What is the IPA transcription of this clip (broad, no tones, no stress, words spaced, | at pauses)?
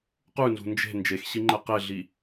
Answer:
qʉnzṳ nd͡ʒe̤ nd͡ʒexɕiŋ͡ǃɛ qeɮi